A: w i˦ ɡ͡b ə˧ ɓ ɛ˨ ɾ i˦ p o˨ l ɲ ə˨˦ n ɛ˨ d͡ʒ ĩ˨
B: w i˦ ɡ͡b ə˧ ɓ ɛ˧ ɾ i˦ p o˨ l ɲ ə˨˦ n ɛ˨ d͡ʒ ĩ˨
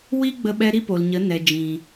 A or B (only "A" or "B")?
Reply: B